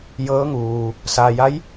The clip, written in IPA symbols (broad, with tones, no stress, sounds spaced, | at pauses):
j ɤː˧˥ ŋ uː˩ | s aː˩ j a˧˥ j